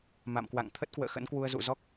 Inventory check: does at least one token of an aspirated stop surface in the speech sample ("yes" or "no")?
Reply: yes